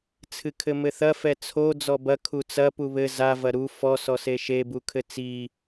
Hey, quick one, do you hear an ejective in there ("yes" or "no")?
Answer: no